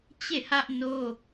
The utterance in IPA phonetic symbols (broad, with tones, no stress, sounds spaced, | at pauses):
t͡ɕ e˦˨ h ä˦ ʔ n o˦